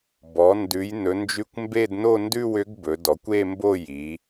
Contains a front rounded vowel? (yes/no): yes